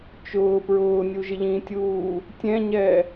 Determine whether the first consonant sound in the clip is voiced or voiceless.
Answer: voiceless